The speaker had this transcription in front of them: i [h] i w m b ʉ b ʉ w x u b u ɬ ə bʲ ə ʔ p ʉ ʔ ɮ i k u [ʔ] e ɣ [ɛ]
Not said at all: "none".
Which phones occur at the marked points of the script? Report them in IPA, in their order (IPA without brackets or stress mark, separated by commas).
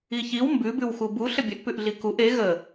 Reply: ç, ʔ, ə